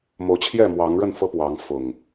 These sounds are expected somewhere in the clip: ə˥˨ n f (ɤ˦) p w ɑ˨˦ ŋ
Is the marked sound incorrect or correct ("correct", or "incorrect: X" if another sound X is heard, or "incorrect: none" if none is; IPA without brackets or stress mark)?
correct